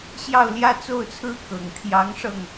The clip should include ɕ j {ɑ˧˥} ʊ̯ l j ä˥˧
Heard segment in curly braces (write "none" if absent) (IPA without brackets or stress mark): ɑ˥˧